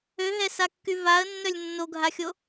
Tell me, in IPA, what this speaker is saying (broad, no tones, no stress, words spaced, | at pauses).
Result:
øɦɛsakːy vaə̯nːœlʲ nːoɡʱaxʲo